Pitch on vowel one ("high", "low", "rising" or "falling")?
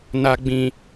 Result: low